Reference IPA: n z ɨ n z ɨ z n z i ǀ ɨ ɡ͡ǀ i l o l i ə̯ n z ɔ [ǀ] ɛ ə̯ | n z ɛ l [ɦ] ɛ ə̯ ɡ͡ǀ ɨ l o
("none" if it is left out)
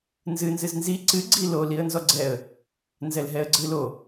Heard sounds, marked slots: ɡ͡ǀ, ɦ

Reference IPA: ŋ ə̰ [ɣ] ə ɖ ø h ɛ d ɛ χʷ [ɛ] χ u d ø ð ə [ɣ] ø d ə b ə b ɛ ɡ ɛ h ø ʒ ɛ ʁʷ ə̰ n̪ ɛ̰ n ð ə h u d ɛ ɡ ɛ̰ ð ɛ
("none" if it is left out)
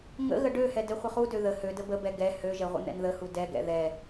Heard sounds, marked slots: ɣ, ə, h

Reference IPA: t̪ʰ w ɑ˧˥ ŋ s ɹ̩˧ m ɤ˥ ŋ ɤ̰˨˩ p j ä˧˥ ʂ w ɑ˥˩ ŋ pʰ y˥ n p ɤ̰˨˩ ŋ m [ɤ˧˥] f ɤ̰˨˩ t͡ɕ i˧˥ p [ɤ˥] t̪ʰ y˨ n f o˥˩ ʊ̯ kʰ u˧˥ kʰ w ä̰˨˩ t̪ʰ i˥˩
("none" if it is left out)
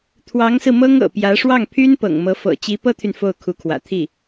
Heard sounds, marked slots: ɤ˧˥, ɤ˥

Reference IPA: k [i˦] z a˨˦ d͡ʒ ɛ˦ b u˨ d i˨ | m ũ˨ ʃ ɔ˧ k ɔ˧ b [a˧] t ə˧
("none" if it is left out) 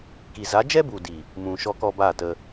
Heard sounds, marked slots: i˨, a˦˨

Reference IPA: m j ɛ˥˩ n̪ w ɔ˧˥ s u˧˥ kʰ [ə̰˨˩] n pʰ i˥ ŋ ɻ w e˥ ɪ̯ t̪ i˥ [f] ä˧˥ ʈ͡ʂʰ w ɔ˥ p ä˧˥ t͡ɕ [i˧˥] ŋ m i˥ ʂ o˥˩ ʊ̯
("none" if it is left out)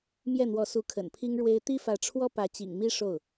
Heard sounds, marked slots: ə̰˨˩, f, ḭ˨˩

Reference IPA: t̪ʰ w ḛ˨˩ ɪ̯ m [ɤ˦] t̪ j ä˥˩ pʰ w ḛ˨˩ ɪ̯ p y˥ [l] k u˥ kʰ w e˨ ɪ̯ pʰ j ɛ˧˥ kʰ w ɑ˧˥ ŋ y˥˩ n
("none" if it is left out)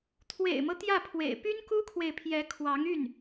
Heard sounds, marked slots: ɤ˦, n

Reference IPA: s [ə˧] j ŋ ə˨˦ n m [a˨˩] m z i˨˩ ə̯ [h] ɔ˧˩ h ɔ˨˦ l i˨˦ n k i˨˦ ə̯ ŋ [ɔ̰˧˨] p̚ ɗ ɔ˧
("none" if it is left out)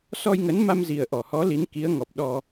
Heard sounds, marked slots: ɔ˧, a˧, ʔ, ɔ˨˩

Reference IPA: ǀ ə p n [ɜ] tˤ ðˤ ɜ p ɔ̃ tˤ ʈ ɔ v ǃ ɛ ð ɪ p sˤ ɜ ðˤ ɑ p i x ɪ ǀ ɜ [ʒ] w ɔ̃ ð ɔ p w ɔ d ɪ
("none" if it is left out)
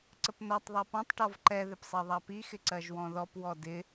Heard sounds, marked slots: ɜ, ʒ

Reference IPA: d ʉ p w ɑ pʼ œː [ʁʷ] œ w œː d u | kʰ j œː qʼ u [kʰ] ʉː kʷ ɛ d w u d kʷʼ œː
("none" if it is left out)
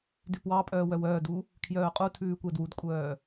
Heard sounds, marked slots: w, tʰ

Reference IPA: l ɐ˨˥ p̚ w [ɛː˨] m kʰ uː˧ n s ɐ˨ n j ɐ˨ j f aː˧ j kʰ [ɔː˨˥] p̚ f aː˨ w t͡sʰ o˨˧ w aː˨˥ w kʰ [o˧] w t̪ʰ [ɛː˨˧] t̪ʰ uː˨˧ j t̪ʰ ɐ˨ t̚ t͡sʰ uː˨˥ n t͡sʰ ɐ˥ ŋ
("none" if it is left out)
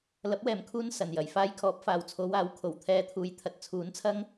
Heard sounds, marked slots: ɛː˨, ɔː˨˥, o˨˩, ɛː˧

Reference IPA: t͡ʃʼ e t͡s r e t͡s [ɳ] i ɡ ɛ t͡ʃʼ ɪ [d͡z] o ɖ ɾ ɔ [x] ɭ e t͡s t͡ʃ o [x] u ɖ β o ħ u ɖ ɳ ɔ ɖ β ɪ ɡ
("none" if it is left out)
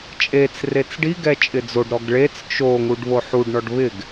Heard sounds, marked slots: ɖ, d͡z, ɡ, ŋ

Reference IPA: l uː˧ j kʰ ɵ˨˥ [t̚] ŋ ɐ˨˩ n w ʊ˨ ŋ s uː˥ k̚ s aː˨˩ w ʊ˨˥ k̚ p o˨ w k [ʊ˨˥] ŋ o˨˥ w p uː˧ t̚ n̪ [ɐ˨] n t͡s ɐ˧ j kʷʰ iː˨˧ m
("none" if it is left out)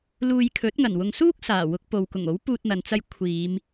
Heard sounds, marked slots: t̚, ʊ˨˩, ɐ˨

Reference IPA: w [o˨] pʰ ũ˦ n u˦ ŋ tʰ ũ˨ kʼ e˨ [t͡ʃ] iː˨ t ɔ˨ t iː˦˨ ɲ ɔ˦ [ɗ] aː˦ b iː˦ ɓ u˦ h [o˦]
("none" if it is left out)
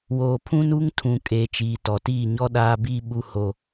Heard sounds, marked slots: oː˨, t͡ʃ, ɗ, o˦

